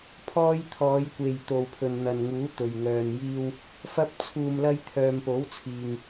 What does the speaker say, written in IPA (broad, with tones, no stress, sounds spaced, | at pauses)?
pʰ ɔː˧ j t̪ʰ ɔː˨˧ j kʷ e˨ j t̪ o˨ w pʰ ɵ˨ n n̪ ɐ˨ n ŋ uː˨˥ t̪ ɵ˨ ɥ ŋ œː˧ n j iː˥ w | f ɐ˧ p̚ t͡sʰ uː˨ m l ɐ˧ j t̪ʰ œː˨ m p o˨˥ w t͡sʰ iː˨ ŋ